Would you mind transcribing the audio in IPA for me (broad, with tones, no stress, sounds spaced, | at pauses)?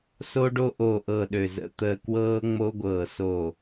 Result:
s o˥ ɖ o˥ ʔ o˦˨ ʔ ɤ˦˨ ɗ ø˦˨ z ə̰˥ t̪ əː˥ k w ɤː˥ ŋ͡m o˥ ɡʷ ɤː˦˨ s o˦˨